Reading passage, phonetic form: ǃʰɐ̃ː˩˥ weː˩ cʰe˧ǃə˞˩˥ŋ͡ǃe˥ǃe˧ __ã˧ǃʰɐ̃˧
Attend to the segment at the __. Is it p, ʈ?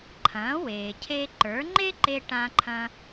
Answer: ʈ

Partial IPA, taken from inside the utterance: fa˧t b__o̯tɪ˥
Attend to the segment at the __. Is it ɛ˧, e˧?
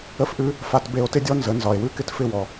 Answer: e˧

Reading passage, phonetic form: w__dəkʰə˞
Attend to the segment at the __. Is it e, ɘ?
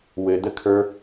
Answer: ɘ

